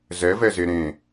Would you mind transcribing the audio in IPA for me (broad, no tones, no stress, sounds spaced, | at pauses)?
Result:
z ɛ v ɛ z e ɾ ẽ